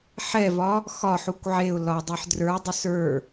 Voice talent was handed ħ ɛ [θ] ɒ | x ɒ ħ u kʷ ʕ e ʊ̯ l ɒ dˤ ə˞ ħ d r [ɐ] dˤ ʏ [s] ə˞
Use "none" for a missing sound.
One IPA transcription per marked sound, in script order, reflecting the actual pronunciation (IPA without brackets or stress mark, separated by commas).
v, ə˞, s